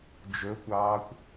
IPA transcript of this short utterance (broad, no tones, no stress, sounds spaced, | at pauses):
d͡ʒ ɵ kʷ ɑː kʷ